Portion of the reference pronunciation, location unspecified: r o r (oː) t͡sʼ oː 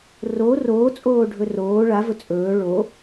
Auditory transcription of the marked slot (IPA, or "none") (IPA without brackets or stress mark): oː